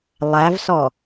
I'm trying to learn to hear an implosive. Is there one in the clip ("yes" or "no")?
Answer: no